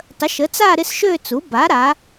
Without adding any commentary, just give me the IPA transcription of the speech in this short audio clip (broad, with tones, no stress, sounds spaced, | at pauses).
tˤ ə˩˥ ʃ ə˩˥ t͡s a˥˧ ɾ ɪ˥˧ s ʃ ø˥˧ t͡s u˩˥ b a˩˥ ɾ a˩˥